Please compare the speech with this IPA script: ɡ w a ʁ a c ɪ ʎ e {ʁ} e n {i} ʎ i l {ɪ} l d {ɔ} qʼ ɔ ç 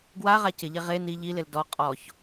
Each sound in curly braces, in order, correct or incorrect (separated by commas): correct, correct, correct, correct